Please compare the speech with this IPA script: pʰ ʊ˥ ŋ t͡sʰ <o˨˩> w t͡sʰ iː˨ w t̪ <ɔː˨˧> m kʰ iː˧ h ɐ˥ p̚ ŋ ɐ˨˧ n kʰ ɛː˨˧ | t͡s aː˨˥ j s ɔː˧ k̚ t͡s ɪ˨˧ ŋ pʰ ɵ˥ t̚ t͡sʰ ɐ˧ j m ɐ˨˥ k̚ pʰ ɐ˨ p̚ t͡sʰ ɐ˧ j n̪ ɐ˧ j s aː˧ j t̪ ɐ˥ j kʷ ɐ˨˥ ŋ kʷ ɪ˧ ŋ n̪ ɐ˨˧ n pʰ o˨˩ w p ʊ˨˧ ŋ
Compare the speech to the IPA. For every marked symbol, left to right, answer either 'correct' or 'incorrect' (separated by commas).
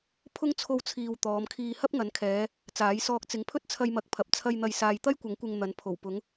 incorrect, correct